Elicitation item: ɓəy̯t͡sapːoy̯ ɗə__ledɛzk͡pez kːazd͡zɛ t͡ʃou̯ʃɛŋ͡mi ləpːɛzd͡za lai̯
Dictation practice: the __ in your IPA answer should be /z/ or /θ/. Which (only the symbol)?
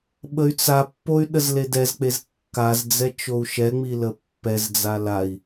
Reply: z